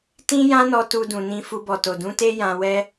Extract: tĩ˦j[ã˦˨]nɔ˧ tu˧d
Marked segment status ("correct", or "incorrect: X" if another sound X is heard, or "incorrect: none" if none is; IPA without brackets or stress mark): incorrect: ã˦